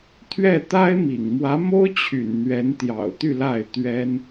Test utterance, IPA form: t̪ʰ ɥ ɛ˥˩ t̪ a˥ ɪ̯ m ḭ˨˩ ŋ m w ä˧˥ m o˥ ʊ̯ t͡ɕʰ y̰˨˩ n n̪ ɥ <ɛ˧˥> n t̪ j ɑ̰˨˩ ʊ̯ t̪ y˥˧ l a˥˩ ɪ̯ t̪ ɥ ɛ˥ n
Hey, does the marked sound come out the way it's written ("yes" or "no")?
yes